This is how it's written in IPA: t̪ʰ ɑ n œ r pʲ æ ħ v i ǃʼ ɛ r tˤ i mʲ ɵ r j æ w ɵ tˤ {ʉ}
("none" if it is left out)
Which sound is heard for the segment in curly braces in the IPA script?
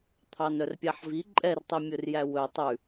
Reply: ʉ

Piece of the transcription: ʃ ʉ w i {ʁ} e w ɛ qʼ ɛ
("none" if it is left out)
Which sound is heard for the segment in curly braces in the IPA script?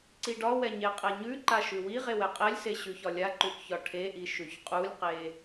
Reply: ʁ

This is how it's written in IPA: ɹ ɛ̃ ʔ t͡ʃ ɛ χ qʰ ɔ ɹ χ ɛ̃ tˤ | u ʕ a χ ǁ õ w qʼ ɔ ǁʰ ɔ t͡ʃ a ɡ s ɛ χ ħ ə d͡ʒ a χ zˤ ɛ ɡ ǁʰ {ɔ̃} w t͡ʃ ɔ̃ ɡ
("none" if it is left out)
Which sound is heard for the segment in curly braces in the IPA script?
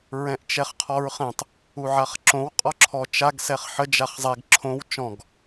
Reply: õ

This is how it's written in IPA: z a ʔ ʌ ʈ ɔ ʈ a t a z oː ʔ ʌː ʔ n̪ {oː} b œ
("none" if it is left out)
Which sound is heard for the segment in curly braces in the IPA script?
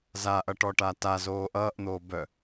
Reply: oː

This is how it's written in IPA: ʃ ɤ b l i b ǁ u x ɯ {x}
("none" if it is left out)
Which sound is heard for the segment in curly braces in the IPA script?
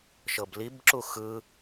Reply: none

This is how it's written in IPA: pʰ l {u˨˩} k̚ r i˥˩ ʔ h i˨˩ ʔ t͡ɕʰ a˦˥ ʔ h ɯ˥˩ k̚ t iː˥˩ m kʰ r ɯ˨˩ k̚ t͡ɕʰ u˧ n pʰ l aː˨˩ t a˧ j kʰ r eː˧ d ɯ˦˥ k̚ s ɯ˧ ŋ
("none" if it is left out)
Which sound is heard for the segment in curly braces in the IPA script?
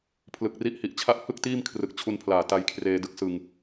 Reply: ɯ˨˩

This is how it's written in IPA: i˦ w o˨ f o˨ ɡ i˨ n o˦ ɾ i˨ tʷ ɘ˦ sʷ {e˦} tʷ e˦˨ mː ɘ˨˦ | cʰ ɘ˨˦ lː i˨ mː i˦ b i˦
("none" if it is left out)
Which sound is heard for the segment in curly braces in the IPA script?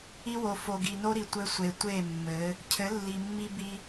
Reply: e˨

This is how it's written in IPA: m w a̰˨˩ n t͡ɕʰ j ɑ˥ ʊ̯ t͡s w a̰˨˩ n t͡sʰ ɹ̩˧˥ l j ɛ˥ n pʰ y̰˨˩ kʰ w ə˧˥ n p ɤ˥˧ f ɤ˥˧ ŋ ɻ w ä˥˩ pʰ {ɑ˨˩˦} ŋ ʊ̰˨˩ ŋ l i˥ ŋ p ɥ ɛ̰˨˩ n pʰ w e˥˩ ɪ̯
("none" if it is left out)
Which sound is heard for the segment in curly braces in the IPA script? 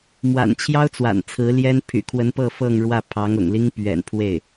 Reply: ɑ˧˥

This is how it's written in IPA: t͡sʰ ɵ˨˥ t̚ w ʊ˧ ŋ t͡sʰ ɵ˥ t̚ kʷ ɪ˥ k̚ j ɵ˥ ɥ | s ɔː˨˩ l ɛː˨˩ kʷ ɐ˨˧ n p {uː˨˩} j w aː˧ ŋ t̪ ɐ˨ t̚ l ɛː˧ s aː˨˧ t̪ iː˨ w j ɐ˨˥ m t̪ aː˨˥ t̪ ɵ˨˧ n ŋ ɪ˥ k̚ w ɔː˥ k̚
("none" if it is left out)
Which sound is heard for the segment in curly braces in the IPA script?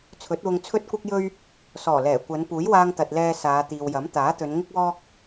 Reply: uː˨˥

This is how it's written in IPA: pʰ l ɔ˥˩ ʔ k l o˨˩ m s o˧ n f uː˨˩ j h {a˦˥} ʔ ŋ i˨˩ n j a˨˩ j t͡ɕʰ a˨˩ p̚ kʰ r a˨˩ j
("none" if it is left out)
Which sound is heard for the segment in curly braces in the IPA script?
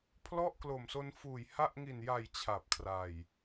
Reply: a˦˥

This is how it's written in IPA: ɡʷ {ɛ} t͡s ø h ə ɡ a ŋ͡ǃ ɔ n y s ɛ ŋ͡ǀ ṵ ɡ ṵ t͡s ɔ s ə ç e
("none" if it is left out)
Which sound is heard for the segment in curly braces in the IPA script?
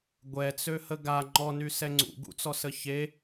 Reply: ɛ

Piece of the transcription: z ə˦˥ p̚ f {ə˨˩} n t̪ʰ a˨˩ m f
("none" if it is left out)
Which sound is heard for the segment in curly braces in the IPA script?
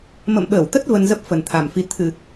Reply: ə˨˩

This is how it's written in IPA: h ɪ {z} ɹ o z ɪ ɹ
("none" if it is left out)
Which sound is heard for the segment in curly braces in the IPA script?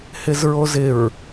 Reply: z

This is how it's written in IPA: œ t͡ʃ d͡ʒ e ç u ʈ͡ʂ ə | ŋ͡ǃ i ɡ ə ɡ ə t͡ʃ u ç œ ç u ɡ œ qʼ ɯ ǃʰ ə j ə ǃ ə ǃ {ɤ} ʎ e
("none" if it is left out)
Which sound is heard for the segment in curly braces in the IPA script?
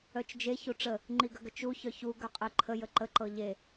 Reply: ɤ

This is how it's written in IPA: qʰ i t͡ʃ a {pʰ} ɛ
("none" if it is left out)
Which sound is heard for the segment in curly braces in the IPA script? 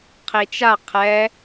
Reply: qʰ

